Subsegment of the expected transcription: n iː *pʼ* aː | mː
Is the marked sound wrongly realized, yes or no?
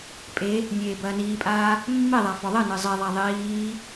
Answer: no